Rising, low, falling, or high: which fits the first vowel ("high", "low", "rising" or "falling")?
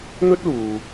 high